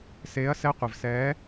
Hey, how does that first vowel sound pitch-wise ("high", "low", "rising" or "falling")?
rising